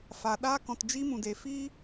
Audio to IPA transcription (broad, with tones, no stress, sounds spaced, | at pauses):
f a˨ ɗ aː˧ k ɔ̃˨ t d͡ʒ i˧ m ũ˨ d e˨ f iː˦